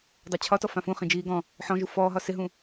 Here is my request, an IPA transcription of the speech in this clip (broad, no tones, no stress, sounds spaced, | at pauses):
dˤ a t͡ɕʰ ɒ t ɔ f ã f ũ χ ĩ d͡ʒ iː ɡ ɔ̃ | ħ ɔ̃ ʒ u f ɔː ɦ ɒ s ɪ ɦ ũ